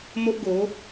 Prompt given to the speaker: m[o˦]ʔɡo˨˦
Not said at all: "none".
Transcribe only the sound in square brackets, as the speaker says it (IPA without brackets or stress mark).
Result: o˦